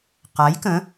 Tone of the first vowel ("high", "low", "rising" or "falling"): rising